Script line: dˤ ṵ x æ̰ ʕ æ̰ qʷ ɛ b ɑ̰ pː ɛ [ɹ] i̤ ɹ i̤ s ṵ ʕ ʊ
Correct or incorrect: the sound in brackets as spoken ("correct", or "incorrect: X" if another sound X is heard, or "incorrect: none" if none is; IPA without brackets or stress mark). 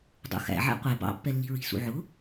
incorrect: lː